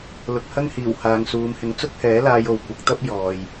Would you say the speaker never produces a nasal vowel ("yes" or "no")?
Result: yes